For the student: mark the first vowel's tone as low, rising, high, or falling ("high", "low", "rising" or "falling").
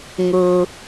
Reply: low